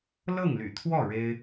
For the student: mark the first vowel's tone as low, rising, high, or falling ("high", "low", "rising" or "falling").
falling